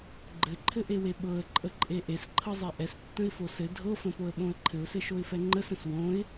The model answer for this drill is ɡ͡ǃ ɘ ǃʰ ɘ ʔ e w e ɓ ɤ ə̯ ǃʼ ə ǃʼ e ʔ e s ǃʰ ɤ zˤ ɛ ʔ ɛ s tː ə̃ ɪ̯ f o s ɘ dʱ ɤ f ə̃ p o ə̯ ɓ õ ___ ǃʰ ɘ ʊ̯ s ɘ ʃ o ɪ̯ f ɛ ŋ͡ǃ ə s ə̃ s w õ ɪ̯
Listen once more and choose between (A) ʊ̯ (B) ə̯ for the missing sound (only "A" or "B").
B